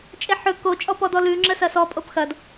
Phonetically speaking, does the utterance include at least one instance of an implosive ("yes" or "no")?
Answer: no